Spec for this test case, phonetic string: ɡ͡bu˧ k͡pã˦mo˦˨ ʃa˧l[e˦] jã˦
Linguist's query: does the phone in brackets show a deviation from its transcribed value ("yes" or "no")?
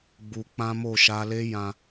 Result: no